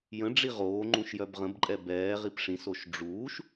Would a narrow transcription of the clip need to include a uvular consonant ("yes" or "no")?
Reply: yes